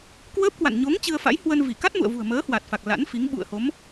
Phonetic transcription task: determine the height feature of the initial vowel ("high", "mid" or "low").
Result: mid